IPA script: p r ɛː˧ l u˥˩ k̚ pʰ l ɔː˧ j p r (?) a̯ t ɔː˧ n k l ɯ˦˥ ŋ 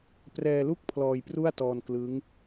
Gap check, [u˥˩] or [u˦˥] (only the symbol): u˥˩